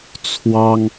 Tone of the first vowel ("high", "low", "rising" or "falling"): high